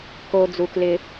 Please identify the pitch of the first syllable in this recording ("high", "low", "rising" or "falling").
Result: high